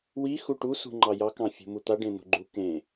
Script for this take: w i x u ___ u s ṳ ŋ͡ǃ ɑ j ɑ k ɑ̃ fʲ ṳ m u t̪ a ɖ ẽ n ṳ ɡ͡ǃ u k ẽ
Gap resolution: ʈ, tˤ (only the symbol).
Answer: ʈ